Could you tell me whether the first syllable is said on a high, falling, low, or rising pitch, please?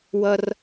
high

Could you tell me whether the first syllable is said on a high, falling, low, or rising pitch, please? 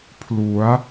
rising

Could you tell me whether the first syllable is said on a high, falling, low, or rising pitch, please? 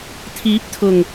rising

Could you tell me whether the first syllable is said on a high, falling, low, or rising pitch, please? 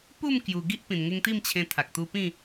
falling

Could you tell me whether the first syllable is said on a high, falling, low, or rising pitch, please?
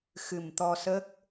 low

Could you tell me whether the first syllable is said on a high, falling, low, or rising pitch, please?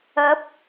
rising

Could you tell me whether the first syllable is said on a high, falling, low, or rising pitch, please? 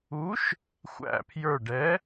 rising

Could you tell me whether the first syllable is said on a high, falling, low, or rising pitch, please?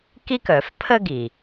high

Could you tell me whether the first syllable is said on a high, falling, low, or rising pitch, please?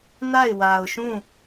falling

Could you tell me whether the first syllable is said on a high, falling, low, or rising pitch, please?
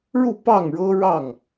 falling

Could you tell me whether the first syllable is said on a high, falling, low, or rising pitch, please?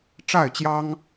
falling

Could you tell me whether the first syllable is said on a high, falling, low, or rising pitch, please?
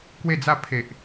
falling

